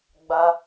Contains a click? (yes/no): no